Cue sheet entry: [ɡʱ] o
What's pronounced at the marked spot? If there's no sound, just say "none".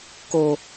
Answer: k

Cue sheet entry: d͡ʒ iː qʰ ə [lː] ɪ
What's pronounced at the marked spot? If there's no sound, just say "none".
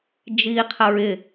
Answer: ɹ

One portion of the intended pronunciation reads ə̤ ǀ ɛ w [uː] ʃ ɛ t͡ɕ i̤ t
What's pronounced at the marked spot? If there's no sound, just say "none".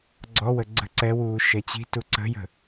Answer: uː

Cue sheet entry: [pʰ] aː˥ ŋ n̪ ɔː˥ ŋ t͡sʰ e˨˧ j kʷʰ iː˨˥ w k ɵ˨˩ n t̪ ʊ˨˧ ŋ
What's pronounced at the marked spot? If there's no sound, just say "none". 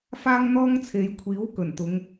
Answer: f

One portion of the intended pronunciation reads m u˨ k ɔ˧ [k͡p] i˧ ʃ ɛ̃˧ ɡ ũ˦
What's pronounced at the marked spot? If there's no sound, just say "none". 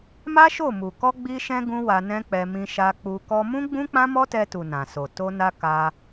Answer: ɡ͡b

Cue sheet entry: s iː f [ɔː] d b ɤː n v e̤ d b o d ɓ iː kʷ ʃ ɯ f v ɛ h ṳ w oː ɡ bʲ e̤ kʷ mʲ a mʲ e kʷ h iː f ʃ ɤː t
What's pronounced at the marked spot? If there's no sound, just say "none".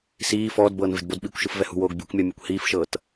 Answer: ɔː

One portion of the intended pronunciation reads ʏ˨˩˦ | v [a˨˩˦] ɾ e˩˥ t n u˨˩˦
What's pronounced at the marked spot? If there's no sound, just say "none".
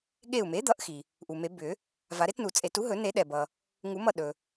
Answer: a˨˩˦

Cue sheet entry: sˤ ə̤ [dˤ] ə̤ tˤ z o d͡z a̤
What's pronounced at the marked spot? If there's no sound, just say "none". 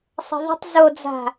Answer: ðˤ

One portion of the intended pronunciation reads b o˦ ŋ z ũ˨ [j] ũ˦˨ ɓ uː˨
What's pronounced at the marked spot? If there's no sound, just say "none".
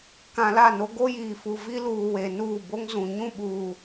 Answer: ɲ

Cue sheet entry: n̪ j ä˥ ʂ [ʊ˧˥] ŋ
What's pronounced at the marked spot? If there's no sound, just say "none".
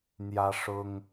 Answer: ʊ˥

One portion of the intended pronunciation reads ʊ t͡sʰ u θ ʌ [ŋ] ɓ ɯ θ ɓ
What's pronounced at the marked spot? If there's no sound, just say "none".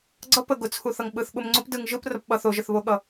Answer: ŋ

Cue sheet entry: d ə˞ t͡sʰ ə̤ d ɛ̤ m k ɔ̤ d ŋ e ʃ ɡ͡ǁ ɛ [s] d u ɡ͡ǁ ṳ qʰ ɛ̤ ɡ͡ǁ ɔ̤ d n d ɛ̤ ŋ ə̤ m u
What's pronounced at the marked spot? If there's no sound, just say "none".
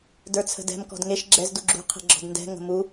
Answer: z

